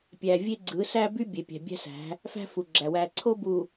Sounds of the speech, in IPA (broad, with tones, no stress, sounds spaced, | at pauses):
pʲ æ˨ vʲ e˦ ɡ͡ǀ ɯ˨˦ s æ˦ b y˦ bʲ e˨ pʲ æ̤˨ bʲ æ̤˦ s æ̤˨˦ | f æ̤˦ f u˨ ɡ͡ǁ æ˨ w æ˨ ǀʰ o˦ b u˨